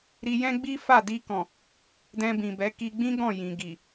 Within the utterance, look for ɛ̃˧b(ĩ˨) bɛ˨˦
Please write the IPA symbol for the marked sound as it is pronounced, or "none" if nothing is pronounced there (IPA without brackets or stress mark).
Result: ĩ˨